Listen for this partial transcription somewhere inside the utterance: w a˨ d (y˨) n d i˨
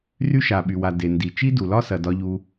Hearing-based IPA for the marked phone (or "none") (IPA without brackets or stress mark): e˨